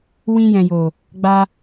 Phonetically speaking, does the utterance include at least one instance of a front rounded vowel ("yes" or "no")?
no